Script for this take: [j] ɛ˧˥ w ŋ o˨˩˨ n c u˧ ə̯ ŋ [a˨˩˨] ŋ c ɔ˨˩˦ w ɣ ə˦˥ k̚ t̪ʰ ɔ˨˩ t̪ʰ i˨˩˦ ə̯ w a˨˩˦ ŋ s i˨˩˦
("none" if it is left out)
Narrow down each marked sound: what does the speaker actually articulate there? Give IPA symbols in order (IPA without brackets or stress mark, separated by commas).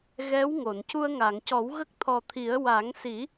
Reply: ɣ, a˨˩˨